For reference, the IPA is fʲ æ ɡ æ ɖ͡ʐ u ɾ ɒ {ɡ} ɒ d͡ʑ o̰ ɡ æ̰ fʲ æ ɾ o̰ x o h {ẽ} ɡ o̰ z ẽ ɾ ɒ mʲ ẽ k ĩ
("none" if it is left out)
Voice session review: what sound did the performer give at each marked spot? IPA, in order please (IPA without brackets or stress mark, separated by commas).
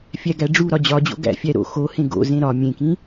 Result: d͡ʑ, ẽ